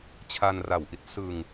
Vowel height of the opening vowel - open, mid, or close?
open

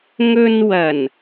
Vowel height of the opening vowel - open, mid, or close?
mid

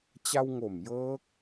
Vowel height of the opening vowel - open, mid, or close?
open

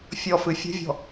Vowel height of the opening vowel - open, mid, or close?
mid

